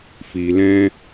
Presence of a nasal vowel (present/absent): present